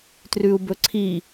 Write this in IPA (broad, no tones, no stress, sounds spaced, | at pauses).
t r ʉ u̯ b ɵ ǀʰ i